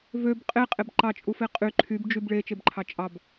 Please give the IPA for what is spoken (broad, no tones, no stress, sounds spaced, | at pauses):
v ø b qʼ e qʼ e b ǃ ɑ t͡ʃʼ u f e qʼ y ǃʰ y b d͡ʒ y b ɭ e t͡ʃ e b ǃʰ ɑ t͡ʃʼ ɑ b